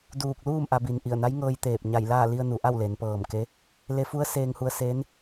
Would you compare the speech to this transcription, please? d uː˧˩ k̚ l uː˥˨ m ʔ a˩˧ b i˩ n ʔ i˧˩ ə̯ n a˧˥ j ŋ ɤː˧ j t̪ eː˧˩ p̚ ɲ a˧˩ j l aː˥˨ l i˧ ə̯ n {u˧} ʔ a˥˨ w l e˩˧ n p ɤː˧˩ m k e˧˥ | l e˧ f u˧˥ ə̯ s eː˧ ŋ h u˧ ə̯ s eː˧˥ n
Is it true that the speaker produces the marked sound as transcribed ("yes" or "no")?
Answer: no